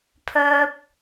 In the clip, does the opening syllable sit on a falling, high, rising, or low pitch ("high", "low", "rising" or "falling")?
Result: low